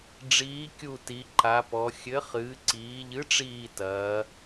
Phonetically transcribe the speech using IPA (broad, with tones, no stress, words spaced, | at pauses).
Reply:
ɖ͡ʐiː˨˥kʲu˦˨ti˩˧ ǃa˩˧pɔ˩˧ xʲɘ˨˥ χɨː˩˧ǀiː˩˧ʎɨ˨˥ ʈ͡ʂiː˦˨ tɐː˩˧